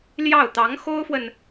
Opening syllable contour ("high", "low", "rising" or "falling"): falling